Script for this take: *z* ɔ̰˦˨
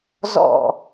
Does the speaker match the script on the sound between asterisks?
yes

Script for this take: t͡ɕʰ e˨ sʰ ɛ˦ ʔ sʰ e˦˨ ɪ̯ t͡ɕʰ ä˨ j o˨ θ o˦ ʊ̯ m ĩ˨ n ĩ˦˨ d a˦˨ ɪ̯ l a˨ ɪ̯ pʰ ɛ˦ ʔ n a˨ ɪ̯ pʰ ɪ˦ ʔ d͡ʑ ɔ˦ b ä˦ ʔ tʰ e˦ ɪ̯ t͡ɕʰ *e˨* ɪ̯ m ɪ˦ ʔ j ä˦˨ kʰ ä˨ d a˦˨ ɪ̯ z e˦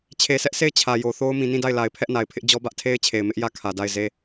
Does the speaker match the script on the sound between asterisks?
yes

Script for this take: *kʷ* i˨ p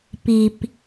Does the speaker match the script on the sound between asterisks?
no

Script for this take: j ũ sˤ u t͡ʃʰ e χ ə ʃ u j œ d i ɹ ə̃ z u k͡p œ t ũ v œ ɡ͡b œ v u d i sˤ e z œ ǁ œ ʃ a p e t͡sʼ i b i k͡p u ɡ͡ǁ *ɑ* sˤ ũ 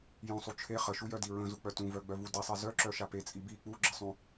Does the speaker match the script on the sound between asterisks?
no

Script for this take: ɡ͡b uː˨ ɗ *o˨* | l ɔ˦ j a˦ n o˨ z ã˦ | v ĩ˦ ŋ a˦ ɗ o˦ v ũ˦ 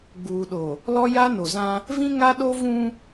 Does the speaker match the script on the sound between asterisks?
yes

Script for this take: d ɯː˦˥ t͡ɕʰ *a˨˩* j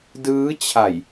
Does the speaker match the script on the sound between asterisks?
yes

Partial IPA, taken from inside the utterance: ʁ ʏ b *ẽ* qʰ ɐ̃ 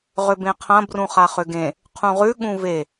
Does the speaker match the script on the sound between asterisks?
yes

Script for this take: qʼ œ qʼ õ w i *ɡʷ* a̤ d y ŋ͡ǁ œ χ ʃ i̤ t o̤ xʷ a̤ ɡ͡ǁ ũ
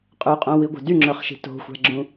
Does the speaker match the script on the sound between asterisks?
yes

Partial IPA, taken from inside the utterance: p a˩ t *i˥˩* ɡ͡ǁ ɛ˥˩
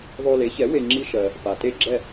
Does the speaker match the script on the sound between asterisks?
no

